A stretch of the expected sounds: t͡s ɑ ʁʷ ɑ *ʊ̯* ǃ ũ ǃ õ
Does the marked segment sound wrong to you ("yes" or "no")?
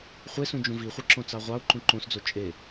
no